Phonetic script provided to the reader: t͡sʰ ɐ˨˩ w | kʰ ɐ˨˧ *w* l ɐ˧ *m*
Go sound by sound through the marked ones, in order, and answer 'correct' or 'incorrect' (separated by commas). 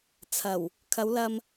correct, correct